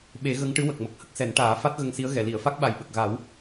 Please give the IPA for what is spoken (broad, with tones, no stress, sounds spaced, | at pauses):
ɓ e˨˩˦ ɣ ə˧˥ ŋ ʈ ɨ˧˥ w ə˨˩ k̚ m ə˨˩ k̚ h ə˦˥ k̚ s ɛ˨˩˦ n ʈ aː˨˩˦ f a˦˥ t̚ ɣ ə˧ ŋ s i˧˥ ə̯ ɣ ɛ˨˩˨ l i˨˩˨ ə̯ f a˦˥ k̚ ɓ a˨˩ j ɓ ə˨˩ k̚ ɣ a˨˩˦ w